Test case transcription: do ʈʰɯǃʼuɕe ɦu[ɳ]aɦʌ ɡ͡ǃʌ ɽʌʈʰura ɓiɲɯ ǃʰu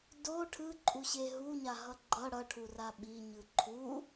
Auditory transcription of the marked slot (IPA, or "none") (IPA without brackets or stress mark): ɲ